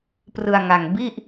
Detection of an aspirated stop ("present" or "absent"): absent